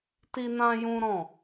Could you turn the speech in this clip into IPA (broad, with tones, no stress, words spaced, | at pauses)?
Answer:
ti˦nã˦jũ˦ɾɔ̃˦˨